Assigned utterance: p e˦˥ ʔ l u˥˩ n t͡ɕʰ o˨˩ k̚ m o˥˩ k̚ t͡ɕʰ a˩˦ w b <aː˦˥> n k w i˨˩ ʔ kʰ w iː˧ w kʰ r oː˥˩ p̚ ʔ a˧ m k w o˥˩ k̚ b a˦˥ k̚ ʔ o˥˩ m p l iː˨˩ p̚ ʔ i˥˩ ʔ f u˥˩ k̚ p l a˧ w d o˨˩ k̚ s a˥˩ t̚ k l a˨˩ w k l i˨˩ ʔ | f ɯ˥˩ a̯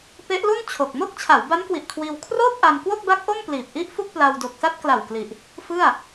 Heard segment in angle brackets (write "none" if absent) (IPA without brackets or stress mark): a˦˥